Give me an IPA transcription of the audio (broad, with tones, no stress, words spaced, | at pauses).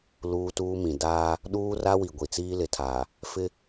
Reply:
luː˦tuː˦mĩ˨ daː˦ | ɗuː˦ra˦wi˨ ɡʷi˨t͡siː˦lɪ˨tʰaː˨ | fɪ˦